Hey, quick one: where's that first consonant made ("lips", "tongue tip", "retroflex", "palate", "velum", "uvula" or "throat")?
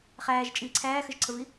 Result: uvula